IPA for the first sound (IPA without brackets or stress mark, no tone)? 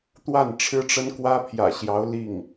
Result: t̪